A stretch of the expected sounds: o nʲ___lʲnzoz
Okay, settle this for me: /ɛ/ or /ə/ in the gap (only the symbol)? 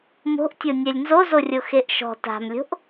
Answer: ɛ